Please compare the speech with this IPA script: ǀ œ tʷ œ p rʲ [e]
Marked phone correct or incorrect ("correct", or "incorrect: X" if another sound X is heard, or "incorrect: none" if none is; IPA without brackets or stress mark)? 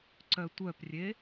correct